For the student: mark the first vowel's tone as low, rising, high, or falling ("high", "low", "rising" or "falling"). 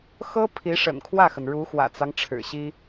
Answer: high